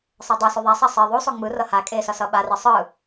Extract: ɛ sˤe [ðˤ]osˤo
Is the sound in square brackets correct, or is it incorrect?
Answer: correct